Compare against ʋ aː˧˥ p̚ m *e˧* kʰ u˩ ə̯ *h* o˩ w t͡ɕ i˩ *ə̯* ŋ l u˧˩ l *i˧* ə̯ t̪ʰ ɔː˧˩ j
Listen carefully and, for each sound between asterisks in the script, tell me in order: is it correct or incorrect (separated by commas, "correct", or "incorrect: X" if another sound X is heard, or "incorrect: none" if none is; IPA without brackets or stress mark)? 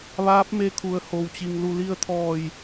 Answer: correct, correct, incorrect: none, correct